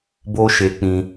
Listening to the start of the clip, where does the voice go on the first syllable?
high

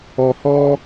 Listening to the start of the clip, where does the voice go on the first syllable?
low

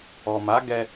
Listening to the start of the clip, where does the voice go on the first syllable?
low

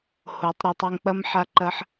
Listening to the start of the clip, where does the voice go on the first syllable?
rising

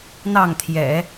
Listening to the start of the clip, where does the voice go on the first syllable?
falling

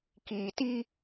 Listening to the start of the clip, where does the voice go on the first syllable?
low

